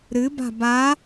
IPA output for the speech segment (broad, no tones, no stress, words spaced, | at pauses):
ɾɨba̤ ba